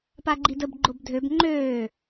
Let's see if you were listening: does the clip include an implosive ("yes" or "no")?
no